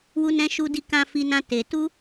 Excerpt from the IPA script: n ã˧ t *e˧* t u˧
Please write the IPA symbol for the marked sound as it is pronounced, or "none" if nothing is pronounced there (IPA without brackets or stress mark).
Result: e˨